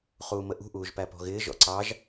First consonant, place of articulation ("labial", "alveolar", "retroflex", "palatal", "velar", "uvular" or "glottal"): uvular